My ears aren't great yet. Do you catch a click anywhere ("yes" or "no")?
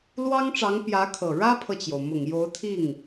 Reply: no